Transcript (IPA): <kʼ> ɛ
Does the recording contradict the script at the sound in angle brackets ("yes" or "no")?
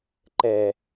yes